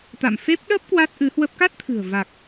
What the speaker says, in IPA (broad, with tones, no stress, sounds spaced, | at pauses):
t̪ a̰˧˨ m f e˦˥ p̚ ɗ ə˦˥ p̚ k w a˦˥ t̚ ʔ ɨ˨˦ h w ə˦˥ p̚ k a˦˥ t̚ t̪ʰ ɨ̤˨˩ ə̯ v a˨˩ k̚